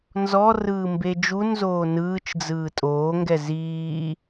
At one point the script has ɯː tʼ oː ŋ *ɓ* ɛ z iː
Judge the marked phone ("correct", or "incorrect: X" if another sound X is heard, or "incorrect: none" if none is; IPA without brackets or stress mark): incorrect: ɡ